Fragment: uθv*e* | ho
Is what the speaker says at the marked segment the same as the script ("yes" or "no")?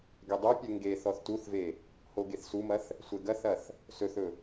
yes